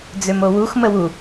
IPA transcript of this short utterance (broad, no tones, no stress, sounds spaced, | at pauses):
d͡z ø m o w u x m ə w u